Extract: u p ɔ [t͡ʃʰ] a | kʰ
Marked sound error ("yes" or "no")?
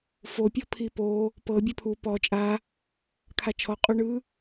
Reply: yes